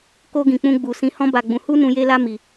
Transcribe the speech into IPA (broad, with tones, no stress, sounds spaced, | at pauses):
k o˧ ɡ ĩ˨ k͡p ũ˧ ɡ͡b u˨ s ĩ˧ h ɔ̃˦ b a˧ ɡ͡b ũ˧ h u˦ n ũ˧ j e˦ l a˦ m i˧